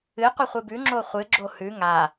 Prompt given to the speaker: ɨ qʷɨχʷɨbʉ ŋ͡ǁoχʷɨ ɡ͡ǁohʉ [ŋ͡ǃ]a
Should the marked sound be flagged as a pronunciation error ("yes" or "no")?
yes